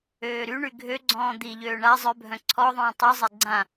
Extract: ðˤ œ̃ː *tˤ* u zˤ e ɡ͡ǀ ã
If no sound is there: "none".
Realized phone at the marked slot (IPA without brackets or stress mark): tˤ